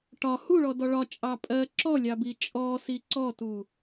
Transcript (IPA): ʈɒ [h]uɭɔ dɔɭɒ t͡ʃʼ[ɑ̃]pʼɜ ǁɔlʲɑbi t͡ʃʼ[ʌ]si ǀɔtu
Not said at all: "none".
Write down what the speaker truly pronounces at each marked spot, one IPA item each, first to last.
h, ɑ, ɔ

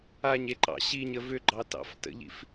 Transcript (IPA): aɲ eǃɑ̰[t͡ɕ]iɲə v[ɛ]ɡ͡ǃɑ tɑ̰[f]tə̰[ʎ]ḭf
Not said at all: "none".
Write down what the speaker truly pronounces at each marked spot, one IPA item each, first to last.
ɕ, ʏ, f, ʎ

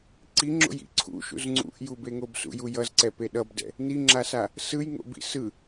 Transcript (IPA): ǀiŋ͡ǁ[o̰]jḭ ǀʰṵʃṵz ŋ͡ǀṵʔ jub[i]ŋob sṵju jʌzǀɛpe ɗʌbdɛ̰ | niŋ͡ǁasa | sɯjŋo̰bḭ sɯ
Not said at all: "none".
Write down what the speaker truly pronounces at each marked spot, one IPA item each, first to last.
o̰, e

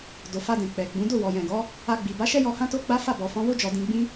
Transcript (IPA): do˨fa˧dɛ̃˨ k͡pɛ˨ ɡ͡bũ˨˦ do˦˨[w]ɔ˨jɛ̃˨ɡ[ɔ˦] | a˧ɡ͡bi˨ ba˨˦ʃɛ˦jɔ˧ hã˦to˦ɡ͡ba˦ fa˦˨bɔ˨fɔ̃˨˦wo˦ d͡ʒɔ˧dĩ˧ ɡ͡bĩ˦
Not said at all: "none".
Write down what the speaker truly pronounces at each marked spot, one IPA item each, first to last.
w, ɔ˨˦

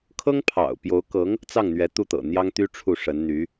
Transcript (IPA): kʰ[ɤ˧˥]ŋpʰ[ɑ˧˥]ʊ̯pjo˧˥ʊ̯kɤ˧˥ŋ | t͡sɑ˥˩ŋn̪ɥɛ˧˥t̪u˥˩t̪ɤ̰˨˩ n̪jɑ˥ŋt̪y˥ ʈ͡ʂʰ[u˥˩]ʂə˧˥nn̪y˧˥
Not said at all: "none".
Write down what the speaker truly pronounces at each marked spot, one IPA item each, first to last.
ɤ˥, ɑ̰˨˩, u˥˩

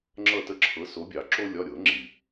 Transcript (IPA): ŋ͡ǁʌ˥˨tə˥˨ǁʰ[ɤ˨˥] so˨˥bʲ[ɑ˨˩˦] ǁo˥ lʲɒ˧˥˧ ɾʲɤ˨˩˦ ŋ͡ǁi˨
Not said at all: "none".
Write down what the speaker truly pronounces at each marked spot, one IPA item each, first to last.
ɤ˨˥, ɑ˨˩˦

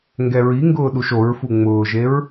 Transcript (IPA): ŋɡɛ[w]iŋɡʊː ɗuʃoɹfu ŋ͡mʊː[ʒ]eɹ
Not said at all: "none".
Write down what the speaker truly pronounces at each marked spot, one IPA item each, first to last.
ɹ, ʒ

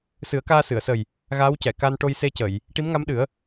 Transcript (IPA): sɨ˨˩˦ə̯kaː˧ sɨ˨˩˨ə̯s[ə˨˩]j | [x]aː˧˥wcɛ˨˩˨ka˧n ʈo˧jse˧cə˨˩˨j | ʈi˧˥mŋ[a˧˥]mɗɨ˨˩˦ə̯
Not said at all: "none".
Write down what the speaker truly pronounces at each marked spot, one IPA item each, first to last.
ə˨˩, ɣ, a˧˥

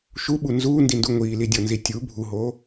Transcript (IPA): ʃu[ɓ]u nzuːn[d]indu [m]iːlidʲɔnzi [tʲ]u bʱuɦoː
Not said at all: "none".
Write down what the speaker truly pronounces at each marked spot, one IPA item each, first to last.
ɓ, d, ŋʷ, tʲ

